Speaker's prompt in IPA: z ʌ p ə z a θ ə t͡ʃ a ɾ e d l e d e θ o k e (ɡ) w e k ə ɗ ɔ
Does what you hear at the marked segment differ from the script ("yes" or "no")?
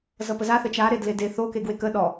no